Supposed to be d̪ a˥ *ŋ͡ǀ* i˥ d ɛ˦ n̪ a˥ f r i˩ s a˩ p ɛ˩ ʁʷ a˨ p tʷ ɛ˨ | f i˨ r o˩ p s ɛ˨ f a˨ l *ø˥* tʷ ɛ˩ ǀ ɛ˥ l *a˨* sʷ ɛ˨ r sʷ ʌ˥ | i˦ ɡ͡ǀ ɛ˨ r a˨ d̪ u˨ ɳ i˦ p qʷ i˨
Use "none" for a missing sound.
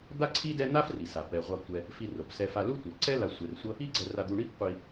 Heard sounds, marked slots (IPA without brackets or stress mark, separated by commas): ǀʰ, u˥, a˨